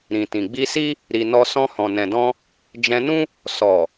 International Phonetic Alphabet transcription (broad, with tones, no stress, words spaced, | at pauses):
ɾĩ˨tĩ˨ ɡ͡bi˧si˦ | ɾi˧nɔ˦ sɔ̃˧hɔ̃˨nɛ̃˨dɔ̃˧ | d͡ʒɛ̃˧nũ˦ | sɔ˨